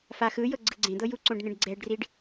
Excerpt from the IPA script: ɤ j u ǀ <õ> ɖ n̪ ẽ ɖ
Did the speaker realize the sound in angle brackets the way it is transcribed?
yes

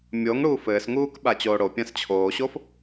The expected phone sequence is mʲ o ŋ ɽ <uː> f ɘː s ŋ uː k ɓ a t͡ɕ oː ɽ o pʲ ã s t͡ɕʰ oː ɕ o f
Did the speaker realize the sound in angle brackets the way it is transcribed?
yes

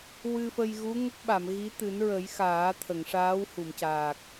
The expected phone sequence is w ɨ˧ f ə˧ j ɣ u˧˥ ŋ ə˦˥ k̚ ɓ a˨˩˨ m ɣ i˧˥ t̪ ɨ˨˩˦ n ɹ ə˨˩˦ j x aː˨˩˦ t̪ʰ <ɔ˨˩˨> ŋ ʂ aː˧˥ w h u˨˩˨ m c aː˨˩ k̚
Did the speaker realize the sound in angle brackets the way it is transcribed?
no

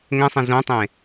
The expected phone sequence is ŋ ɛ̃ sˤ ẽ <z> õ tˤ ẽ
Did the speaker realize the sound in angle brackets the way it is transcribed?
yes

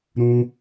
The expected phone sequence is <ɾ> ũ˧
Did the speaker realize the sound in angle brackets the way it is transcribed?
yes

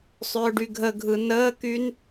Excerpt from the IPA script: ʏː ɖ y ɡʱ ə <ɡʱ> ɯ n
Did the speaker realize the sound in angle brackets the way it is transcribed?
yes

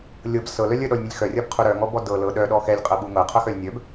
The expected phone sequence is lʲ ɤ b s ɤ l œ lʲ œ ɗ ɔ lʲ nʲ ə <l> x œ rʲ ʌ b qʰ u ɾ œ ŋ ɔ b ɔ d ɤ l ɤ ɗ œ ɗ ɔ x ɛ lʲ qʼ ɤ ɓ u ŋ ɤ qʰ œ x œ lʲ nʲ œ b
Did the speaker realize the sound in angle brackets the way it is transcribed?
no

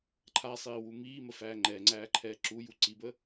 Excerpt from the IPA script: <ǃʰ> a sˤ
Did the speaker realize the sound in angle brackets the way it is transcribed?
yes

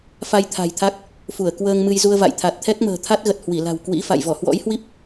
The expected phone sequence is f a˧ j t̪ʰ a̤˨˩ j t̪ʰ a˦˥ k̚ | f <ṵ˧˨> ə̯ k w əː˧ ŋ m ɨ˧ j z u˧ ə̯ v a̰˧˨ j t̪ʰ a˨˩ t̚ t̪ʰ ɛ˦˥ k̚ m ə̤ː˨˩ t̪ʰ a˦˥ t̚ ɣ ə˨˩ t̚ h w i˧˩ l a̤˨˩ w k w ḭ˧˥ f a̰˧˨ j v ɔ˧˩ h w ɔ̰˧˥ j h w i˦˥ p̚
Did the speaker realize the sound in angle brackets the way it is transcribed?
no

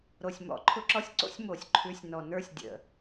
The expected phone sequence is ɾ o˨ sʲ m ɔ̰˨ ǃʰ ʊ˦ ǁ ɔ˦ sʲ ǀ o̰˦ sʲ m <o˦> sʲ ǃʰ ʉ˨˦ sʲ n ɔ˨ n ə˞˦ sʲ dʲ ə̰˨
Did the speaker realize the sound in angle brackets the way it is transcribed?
no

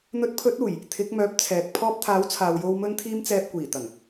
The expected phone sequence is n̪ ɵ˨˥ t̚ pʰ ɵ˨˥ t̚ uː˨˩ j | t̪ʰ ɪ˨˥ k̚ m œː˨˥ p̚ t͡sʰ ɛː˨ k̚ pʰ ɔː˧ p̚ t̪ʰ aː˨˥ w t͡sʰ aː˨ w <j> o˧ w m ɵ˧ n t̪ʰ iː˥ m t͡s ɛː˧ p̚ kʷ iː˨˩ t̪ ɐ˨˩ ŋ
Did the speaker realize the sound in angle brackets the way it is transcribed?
yes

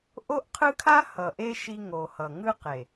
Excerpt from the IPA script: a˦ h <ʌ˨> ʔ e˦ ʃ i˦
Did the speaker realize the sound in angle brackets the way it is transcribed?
yes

